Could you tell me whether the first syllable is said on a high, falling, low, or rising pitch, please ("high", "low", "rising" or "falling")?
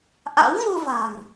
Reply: rising